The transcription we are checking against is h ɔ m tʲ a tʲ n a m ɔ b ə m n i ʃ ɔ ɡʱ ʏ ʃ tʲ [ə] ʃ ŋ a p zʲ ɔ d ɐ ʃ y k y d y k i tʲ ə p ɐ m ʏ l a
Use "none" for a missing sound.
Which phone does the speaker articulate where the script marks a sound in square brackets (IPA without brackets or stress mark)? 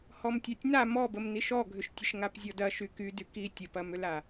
ə